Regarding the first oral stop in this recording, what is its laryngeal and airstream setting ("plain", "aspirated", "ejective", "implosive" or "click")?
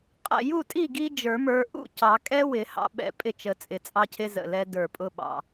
ejective